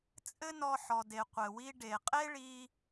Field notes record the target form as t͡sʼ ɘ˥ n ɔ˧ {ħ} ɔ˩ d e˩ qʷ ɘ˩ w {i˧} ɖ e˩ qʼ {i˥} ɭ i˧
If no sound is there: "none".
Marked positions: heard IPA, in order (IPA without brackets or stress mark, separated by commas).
ħ, i˧, e˥